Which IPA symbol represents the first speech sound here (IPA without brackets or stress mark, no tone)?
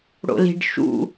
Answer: ɽ